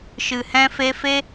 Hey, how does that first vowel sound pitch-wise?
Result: low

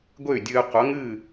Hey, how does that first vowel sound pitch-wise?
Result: falling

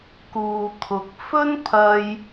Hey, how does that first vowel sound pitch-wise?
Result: low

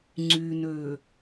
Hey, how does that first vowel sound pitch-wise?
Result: low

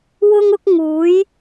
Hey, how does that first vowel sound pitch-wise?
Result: high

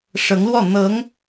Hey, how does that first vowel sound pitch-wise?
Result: rising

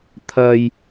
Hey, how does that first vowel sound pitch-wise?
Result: low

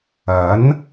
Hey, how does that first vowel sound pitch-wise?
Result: rising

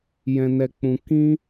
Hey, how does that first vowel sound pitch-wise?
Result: low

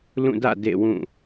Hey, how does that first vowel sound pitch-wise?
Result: falling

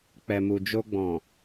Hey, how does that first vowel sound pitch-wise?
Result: low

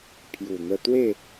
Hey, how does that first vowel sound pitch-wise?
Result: low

